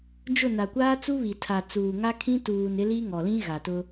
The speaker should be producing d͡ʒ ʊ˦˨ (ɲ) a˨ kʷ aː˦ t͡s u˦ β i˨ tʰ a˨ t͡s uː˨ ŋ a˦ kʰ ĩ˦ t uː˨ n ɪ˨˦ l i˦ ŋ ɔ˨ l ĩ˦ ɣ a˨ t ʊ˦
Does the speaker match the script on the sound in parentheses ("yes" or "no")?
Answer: no